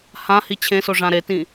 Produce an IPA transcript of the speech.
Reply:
hã hit͡ɕʰẽso ʐãɾetĩː

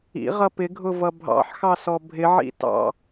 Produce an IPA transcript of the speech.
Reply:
ḭʁʌ pɪɡʱʊvʌ bʱɑ̰ħxɑ sɔbʱɪʕḭ tɑ̰

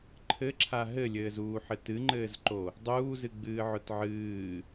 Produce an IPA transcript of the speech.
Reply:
ǃʰɘǁʰa ɦɘlʲɘːzuːħɘ tɨŋ͡ǃɘːzǃo | dˤuːzɨɡ͡bɨːʕʊt ʕɨː

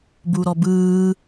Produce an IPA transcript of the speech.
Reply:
buɾɔbɯː

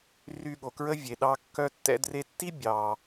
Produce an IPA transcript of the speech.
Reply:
ry˧ɠo˩kɹə˥ vʲe˩ɗɑ˧ kːœ˧tːɛ̰˧ dre˧tːi˥ bʲɑ˩

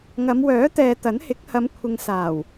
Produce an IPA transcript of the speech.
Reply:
ŋɐ˨˧mwœː˨˥t̪ɛː˨ t̪ɐ˨˥nhɪ˨˥k̚ hɐ˨˧mkʷʰɪ˨ŋsaː˨˩w

